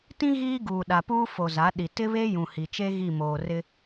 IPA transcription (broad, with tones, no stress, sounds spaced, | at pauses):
t ĩ˦ ɣ iː˦ ɡ uː˨ ɗ a˨ p uː˦ f o˨ z a˨˦ ɗ i˨ t ɪ˦ β e˦ j ũ˨ h i˨ t͡ʃ e˦ ɣ i˦˨ m oː˨ r ɪ˦